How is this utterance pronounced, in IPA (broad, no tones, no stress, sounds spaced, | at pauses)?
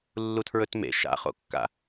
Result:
lː u tʰ ɹ ɵ t m ḛ ʃ a̰ χ o̰ kː a̰